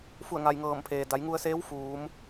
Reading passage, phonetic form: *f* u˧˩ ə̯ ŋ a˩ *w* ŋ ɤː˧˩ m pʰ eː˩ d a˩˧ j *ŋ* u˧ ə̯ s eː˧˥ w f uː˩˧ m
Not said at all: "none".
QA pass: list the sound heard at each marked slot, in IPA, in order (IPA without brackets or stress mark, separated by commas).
f, j, ŋ